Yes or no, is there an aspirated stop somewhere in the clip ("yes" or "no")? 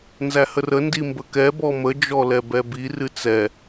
no